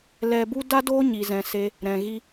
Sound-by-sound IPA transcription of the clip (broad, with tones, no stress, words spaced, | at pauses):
lɛ˧bu˦ da˦doː˦ ɲi˧zɛ̃˧se˦ | ɾɛ̃˨ɣi˦